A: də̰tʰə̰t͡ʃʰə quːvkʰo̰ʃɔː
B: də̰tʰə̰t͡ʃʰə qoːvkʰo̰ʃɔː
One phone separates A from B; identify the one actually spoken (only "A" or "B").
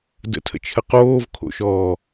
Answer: B